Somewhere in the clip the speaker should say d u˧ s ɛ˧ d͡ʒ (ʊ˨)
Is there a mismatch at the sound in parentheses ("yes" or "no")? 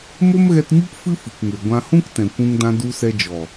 yes